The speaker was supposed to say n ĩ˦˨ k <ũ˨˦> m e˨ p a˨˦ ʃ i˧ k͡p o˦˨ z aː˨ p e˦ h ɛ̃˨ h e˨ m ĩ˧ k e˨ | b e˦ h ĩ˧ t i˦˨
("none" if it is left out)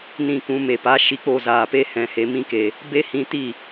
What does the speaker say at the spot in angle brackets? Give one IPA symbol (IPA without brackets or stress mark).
ũ˨˦